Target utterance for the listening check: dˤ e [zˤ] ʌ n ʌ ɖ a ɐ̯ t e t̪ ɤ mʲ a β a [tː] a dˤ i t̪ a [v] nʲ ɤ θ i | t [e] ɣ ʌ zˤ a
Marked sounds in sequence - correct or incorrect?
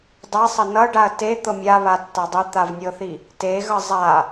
incorrect: sˤ, correct, correct, correct

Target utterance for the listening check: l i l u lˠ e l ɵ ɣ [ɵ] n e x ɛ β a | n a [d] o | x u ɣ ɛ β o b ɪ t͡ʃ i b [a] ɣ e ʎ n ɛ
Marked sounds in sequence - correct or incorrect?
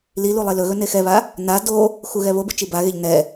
correct, correct, correct

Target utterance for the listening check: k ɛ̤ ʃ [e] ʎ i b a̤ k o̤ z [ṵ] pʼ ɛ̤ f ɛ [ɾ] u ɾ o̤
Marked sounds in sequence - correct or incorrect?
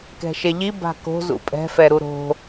correct, correct, correct

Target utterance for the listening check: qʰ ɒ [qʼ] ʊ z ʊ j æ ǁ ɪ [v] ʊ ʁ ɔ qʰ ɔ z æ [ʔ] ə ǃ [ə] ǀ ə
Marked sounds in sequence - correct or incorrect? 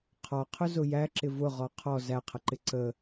incorrect: qʰ, correct, incorrect: qʰ, incorrect: ɪ

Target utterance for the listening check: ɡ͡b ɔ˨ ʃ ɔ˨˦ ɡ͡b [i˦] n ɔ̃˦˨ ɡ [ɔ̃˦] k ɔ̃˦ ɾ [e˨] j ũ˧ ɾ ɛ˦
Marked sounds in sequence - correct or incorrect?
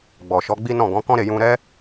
correct, incorrect: ɔ̃˨˦, incorrect: e˦˨

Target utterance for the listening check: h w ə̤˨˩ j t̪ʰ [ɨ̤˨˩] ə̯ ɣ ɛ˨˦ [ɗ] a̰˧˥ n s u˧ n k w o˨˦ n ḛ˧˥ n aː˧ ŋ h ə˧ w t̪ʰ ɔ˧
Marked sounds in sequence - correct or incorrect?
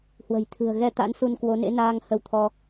correct, incorrect: t̪

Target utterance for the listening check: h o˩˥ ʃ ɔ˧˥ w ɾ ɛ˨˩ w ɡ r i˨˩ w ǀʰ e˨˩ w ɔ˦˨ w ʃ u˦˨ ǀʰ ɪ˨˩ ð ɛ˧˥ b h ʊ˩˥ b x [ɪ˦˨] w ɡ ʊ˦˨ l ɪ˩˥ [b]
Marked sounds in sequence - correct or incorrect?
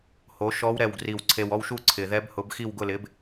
incorrect: i˦˨, correct

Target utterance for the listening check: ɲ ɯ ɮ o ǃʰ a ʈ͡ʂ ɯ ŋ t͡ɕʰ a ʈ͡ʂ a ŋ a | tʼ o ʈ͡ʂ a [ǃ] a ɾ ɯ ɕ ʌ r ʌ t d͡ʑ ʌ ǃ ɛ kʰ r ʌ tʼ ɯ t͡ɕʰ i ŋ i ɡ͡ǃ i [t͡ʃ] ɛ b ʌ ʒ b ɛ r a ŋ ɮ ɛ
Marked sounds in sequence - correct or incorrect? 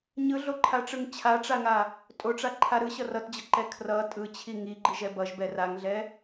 incorrect: ǃʰ, incorrect: ʒ

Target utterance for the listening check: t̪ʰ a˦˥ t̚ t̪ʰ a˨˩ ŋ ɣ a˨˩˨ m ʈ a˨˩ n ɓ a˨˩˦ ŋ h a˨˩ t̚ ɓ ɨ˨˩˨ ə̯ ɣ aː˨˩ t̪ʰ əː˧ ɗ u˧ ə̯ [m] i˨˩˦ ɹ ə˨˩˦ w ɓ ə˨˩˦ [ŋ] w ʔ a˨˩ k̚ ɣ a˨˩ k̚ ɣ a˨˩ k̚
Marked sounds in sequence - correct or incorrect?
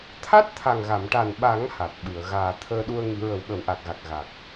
incorrect: ŋ, incorrect: none

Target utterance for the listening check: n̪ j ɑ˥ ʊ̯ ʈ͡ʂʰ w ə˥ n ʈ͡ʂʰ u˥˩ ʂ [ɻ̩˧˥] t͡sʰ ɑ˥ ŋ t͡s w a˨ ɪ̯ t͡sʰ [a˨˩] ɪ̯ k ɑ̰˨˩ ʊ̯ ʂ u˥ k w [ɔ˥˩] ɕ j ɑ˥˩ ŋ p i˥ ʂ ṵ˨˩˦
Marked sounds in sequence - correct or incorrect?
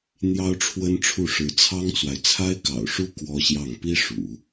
correct, incorrect: a˥, incorrect: ɔ˥

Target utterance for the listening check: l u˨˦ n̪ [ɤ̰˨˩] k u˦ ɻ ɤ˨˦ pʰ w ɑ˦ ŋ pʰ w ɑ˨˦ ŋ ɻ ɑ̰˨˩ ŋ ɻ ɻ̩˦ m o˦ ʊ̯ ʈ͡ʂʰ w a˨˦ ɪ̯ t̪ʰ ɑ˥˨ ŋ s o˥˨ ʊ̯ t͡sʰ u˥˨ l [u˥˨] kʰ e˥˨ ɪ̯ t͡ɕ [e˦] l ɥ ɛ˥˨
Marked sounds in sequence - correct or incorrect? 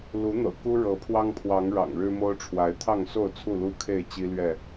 correct, incorrect: u˦, incorrect: i˦

